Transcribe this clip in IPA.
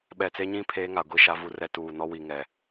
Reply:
ɓɛ˨t͡se˦ɲĩ˦ pʰeː˦ŋa˨ɡʷi˦˨ʃa˦ vu˦rɛ˦ tuː˨nɔ˦wi˨ŋɛ˨

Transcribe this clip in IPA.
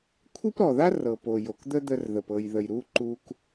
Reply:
kʷʰi˥pɾɔ˩ða˥ rɤ˩po˩ jo˩kd̪ə˥d̪ə˧rðə˩p ɤ˩jðə˩jɾu˧ ǃu˧k

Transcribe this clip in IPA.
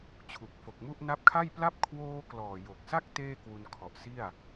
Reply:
t͡ɕʰu˨˩k̚fo˨˩k̚mu˥˩ʔ na˦˥p̚kʰa˥˩jpla˥˩p̚ kʰwoː˧ klɔː˨˩jo˨˩k̚sa˥˩k̚ teː˥˩kwu˧nkʰɔ˨˩ʔsi˥˩a̯

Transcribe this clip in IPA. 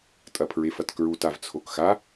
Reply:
tʼɐpʰɹefɐtkɹut avt͡sʰokxa

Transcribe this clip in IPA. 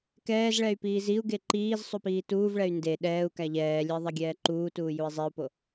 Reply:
kɛːzɭɛy̯ piːziu̯ɡe ǃiːz sˤupiːtuːvɭɛy̯ nde ɗɛːu̯ kæʎɛːlʲɛ ðˤɛɡʲɛːǃuːtuː jui̯zˤiu̯po

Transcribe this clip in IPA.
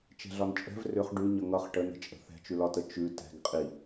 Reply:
t͡ʃɛ̤ɮɒnt͡ʃʼɛ̤v rʏχ ɖʉɲʌ ŋʌχ ʈənə̤t͡ʃʼə̤ θɛ̤t͡ʃʉlɒtə t͡ʃʉ tɛ̤ɡ qʼi

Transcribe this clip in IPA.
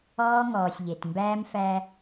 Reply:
ɔː˦ŋɔː˨sʲʎe˨t mbæː˦mfæ˦

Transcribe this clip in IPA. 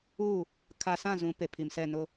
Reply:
u˦˨ | kʰa˨ sã˦˨zũ˨˦ pe˨pʰi˨msɛ˦˨ nʊ˦

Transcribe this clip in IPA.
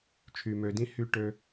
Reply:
t͡ʃʰy˩mø˩dĩ˨ hy˨ʈø˨

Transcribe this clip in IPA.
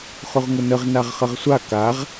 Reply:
χʊʁŋʊnəʁ naʁχəʁsʷa kaʁ

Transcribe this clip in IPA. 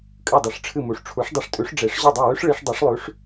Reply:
kʼɨ˥˩dˤɨ˨˩˦ʂʈ͡ʂʰɨ˥˩mu˨ʂ ʈ͡ʂʰu˩˥ʂdˤɨ˩˥ʂtʼʉ˩˥ʂ ɖ͡ʐe˨˩˦ʂ ʑo˥˩dˤo˥˩wʉ˦˥ʂ ɭi˨˩˦ʂdˤi˩˥ʂlˠʉ˩˥ʂ

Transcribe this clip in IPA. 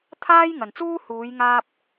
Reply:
t̪ʰaː˥jŋɐ˨nt͡suː˥ huː˨˧j ŋaː˥p̚

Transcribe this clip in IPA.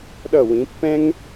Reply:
ɗʌ˧˩wĩ˩˧ pːɛ̃˧ŋ

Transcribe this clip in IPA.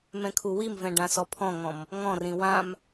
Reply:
mɛ̃kʰuwimvɛ̃ ɖãsɔpʰɔ̃ŋɔ̃m | ŋɔ̃rĩ wãm

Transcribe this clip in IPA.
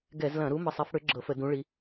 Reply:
ɡɛ˧˩˧zlɐ̃˧˩˧ ɾu˨˦ mə˨˦sˤɛ˨˦f ɽʏ˨˦ ɡ͡ǁɤ˧˩˧fə˧˩˧ dũ˨˦ɭi˨˦

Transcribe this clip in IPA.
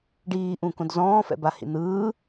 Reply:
ɖiːʔũkõd zɔ̃ːfɛ̰bahḭ n̪ɯː

